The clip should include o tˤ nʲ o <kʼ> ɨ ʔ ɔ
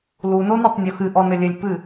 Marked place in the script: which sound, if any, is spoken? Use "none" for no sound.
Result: x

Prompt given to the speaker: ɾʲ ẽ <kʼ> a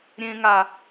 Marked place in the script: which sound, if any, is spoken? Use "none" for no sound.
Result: ŋ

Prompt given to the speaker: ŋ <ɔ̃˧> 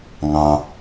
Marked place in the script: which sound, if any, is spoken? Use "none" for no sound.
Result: ɑ̃˧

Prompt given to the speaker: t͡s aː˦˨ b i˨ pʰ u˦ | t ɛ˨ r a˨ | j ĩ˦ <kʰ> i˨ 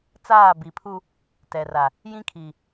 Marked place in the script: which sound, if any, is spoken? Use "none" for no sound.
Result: kʰ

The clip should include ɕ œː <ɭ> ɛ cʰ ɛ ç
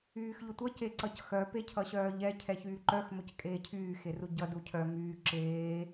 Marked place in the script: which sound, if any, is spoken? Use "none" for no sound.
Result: ʎ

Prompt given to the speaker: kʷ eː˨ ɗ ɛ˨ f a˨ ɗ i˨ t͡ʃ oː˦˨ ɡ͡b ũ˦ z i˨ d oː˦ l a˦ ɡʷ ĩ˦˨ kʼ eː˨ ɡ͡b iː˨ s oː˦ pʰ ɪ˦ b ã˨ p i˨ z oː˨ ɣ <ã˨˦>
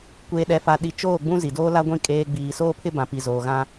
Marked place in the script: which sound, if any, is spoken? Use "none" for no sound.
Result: ã˦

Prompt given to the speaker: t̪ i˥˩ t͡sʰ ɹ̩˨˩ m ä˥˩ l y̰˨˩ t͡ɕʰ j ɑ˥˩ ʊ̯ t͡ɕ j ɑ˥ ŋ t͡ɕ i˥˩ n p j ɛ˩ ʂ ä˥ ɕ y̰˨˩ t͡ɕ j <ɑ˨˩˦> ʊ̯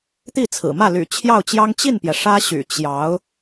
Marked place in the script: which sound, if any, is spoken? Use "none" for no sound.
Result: ɑ˧˥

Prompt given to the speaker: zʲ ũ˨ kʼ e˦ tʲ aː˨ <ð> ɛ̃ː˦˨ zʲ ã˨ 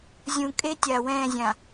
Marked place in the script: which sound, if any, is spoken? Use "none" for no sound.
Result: w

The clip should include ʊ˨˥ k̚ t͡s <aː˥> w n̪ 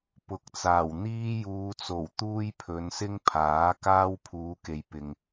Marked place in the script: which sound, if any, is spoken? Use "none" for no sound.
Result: aː˨˩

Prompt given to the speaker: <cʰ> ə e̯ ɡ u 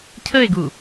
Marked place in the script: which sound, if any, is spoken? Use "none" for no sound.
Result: cʰ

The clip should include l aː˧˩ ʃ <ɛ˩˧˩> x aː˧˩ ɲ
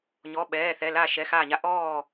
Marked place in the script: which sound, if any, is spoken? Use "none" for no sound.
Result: ɛ˩˧˩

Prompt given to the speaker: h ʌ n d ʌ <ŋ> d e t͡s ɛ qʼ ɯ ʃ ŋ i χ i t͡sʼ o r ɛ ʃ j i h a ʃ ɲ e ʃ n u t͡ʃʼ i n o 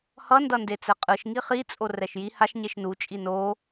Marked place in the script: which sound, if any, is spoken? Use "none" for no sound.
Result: n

